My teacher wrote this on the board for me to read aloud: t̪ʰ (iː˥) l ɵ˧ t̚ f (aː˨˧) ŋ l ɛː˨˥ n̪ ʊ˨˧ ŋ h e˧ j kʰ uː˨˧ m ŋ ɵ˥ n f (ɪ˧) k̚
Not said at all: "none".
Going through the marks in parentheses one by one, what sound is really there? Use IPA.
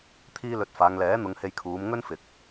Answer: iː˥, aː˨˧, ɪ˨˥

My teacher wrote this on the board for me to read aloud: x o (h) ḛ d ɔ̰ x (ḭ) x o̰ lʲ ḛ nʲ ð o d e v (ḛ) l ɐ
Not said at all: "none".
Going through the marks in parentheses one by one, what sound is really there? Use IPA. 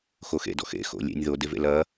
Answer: x, ḛ, ḛ

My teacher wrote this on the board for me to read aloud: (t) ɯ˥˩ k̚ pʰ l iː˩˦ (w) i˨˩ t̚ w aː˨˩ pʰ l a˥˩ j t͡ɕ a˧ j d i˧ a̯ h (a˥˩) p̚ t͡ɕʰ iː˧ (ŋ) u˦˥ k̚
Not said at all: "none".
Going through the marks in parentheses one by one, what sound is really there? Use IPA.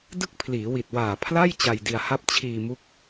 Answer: d, w, a˥˩, m

